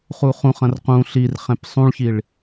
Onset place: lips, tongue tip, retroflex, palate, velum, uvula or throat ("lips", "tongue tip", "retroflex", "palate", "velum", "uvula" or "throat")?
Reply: uvula